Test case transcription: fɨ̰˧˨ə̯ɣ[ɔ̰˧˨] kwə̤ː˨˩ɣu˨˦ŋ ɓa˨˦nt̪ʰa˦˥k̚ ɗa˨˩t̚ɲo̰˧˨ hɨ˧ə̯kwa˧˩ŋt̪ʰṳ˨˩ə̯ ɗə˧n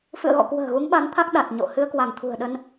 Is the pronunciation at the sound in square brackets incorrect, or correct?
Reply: correct